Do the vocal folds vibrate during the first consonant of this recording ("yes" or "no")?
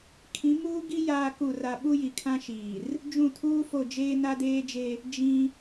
no